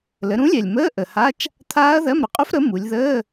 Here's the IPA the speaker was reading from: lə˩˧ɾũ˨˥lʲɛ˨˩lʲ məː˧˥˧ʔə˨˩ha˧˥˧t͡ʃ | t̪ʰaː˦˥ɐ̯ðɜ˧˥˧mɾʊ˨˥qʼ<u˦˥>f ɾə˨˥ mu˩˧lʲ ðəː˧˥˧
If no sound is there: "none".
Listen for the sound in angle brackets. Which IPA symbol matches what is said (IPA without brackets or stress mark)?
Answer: u˦˥